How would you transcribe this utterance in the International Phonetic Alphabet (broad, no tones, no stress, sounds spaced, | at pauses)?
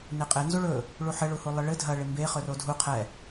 n e qʼ ɪ n z u ɭ ɵ | ɭ u ħ ɘ ɭ u h u lˠ ə ɭ ɘ dʱ ɐ ɭ ɪ m b e χ ɵ r o dʱ u qʰ ɛ